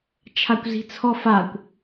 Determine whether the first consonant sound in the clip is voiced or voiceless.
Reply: voiceless